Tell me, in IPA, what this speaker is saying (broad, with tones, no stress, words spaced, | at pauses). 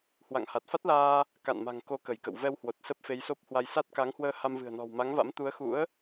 hwa̰˧˨ŋha˨˩t̚fa˦˥t̚laː˧ | ka̰˧˨nma̤˨˩ŋko˨˦ kə˧˩jkə̰˧˨w vɛ˧whwo˨˩t̚ sə˦˥p̚fe˨˦jso˦˥p̚hwa˧j sa˦˥t̚ka˨˦ŋhwəː˧ ha˧mvɨ̤˨˩ə̯nɔ̤˨˩w ma˨˦ŋva̰˧˥m t̪u˨˦ə̯xṵ˧˥ə̯